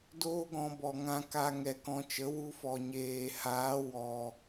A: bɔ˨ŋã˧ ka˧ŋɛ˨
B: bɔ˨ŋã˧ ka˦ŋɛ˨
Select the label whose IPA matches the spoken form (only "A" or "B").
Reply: A